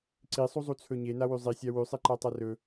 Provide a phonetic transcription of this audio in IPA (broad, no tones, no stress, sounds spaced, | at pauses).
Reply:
ǀ i sˤ u zˤ u t͡sʰ ɵ ɲ e n a w ʉ zˤ i sʲ a w ʉ sˤ i ǃ a tˤ a r ɵ